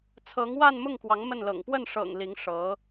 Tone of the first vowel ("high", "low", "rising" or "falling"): rising